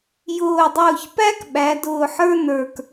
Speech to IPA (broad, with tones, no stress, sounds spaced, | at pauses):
j ʊː˧˩ dˤ ʊː˧˩ ç p æ˥ k ɓ æ˩˧ d ʊː˧ ħ ə˞˥ n ə˞˧ k